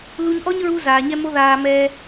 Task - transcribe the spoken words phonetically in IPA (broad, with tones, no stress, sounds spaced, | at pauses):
l u˧ ɲ ʔ ɔ˦ ɲ ɹ u˧ z aː˨ ɲ ɛ˦ m o˦ ð aː˧ m ɛː˧